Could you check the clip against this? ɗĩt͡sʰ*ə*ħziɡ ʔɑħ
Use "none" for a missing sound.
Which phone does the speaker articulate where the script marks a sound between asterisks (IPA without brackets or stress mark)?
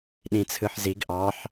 ɯ